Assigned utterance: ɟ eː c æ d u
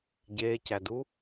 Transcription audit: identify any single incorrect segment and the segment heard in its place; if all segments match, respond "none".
none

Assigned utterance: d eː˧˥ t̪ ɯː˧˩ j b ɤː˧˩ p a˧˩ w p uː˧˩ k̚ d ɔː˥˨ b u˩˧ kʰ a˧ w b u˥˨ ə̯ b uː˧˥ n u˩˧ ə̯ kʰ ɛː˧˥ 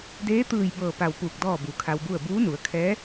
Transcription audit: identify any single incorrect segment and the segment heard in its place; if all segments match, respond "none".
none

